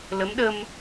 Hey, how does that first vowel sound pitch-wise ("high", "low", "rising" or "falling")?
rising